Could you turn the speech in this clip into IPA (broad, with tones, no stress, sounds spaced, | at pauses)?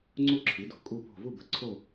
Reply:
ŋ͡ǀ u˥˧ ǁʰ i˨˥ d o̤˨˥ kʼ u˥˧ p o̤˥˧ v u˥˧ b ə̤˧ ǀʰ o˥˧